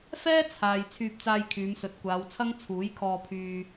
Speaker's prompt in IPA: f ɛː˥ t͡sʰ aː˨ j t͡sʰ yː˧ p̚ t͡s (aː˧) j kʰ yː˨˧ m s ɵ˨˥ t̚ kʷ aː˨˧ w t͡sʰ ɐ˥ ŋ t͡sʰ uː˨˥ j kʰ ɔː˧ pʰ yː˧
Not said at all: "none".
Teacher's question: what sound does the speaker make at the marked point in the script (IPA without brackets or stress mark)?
aː˧